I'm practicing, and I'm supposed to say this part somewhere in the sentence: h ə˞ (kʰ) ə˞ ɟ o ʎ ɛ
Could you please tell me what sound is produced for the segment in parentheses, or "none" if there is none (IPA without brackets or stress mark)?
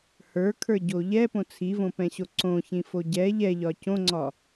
kʰ